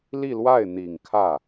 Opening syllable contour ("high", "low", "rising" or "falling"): falling